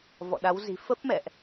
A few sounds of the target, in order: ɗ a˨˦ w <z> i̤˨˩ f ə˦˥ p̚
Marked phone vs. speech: correct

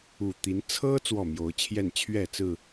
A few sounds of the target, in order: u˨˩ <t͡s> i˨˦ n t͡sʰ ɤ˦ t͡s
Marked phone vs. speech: incorrect: t̪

